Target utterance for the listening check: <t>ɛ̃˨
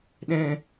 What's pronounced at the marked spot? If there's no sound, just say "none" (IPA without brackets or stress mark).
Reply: ɗ